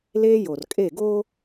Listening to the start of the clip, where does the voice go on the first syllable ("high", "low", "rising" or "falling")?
high